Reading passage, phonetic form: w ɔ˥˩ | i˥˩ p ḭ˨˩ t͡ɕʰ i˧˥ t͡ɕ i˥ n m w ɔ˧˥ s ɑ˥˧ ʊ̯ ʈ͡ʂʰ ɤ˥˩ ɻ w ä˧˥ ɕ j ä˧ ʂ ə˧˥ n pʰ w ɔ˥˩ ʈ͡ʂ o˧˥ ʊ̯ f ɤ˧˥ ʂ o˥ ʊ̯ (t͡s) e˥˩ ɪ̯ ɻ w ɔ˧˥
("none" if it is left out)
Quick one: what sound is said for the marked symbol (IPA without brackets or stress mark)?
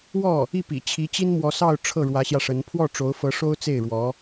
t͡s